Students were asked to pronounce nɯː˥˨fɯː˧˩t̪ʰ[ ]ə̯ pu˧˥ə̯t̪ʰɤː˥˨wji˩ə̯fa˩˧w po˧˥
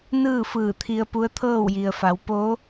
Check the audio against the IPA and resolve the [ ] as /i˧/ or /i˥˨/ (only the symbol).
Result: i˧